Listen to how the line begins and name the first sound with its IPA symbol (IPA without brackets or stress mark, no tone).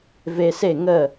v